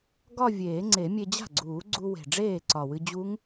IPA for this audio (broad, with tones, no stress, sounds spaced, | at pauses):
ɡ ɒ˥˧ vʲ eː˨˩˦ ŋ͡ǀ e˨˩˦ mʲ e˧ d͡ʑ a̤˥˩ ɡ͡ǀ uː˨˩˦ ɡ͡ǀ u˧ w e̤˨˩ ɖ͡ʐ eː˥˩ ǀ ɒ˨˩ w ɨ˧ d͡ʑ u˦˥ ŋ